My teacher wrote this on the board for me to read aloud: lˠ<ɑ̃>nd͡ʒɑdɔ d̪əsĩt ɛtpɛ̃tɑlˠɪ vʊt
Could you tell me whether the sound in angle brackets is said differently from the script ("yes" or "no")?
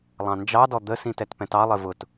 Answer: no